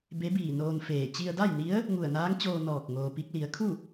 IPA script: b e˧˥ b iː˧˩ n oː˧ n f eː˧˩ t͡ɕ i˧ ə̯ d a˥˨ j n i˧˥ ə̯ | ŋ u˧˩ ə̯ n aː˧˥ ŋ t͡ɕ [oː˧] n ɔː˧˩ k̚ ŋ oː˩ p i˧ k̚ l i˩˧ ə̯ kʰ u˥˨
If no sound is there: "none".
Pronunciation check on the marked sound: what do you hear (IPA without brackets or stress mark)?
oː˧